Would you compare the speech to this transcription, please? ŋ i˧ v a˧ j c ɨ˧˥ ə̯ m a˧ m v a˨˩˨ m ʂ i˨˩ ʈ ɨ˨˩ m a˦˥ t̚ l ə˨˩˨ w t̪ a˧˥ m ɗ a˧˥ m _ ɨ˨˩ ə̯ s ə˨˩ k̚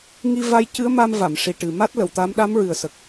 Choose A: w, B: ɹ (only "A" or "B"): B